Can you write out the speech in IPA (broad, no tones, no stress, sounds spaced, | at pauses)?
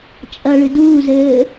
t͡ʃʼ ɐ ɭ ɨ d uː z ɘː